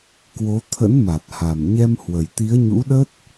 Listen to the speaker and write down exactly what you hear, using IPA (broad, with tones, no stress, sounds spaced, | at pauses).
k w o˨˦ t̪ʰ ə̰˧˥ n m a˨˩ t̚ h a˨˩ m ɲ ɛ˧ m h w ə˨˩ j t̪ i˨˦ ə̯ ɲ ṵ˧˥ ɗ ə˦˥ t̚